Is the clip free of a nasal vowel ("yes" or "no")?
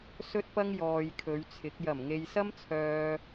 yes